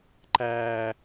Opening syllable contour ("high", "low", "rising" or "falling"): low